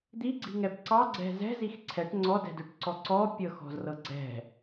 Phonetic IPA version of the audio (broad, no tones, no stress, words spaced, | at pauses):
d̪iɡ͡ǀi̤ŋɛb ǀɑɡ͡ǀɛ̤ zɛ̤zix ǀʰɛʈ ŋ͡ǀɔdɛ̤døʈǀɔ ǀɔpʲɤxɔ̤zrɤ ɡ͡ǀɛ̤